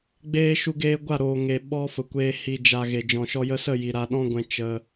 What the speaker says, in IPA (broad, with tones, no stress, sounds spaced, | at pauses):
ɡ͡b eː˦ ʃ u˧ ɡ eː˧ ɡʷ a˦˨ ɾ oː˨ ŋ e˨ ɓ ɔ˦ f ə˨ kʷ eː˧ h i˧ d͡ʒ a˧ ɣ e˨ d͡ʒ ɔ̃˨ ʃ ɔ˧ j ə˧ s ə˦˨ j i˨ ɾ a˧ ɗ ɔ̃˦ ɡʷ ɛ̃˧ t͡ʃ ə˧